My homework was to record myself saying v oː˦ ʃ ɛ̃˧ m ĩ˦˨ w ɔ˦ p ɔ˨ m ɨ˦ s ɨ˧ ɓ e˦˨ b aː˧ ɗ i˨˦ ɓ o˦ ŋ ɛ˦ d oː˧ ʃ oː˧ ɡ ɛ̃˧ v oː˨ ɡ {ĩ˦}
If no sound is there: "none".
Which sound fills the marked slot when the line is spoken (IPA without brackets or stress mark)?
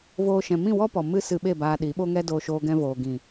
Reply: ĩ˨